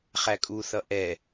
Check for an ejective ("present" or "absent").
present